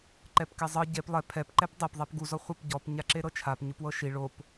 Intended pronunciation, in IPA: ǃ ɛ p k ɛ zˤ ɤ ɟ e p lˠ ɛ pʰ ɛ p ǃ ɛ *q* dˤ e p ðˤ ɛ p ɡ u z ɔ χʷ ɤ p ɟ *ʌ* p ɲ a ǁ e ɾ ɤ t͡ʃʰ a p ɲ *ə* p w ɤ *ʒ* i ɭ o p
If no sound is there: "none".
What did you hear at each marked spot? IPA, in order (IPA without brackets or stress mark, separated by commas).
p, ɔ, ɯ, ʃ